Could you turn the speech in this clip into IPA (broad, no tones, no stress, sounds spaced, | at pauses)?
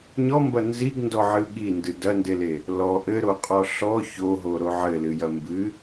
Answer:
ɲ ɔ m b ɐ n z i ɡ n d ɔ ʕ ɨ ɠ i n d ɨ d ɐ n d e l e | l ɔ ʔ ɘ ɾ o qʼ ɔ ɬ ɔ ç o ɦ o ɾ o ʕ ɘ l ɨ j ɐ m b ɨ